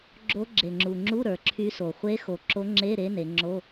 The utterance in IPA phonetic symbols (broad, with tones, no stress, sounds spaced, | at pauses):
ɡ͡ǁ o˧˥ ɡ͡ǁ e˨˩ ŋ͡ǁ u˨˩ ŋ͡ǁ u˧˥˧ ɾ ə˞˩˧ ǁʰ y˧˥ s o˨˩ χʷ e˧˥ x o˨˩ ǁ o˧˥ ŋ͡ǁ e˧˥˧ ɾ e˧˥ n e˩˧ ŋ͡ǁ o˧˥˧